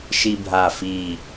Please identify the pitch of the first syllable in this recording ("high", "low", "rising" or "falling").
high